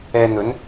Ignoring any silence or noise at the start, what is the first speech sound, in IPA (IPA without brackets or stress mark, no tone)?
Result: ɛː